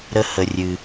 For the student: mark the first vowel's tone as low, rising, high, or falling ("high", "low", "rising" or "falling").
high